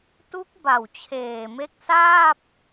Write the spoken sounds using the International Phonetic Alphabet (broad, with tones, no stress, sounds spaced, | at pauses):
t u˦˥ k̚ b a˨˩ w t͡ɕʰ eː˨˩ m e˦˥ k̚ s aː˥˩ p̚